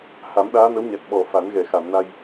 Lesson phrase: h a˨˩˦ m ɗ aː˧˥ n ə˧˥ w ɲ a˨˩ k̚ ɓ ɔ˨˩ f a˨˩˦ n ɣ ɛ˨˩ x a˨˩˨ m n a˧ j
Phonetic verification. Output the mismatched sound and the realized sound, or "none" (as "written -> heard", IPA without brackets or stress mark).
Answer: none